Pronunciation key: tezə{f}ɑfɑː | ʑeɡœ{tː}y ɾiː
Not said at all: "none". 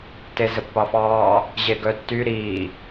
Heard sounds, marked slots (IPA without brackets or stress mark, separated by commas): pː, tː